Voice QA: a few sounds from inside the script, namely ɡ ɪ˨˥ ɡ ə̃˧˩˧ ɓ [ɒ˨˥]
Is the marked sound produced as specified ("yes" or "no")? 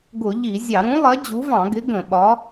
yes